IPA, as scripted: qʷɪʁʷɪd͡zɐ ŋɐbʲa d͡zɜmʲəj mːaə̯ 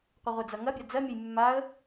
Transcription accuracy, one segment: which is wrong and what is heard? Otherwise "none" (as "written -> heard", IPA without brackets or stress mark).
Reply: none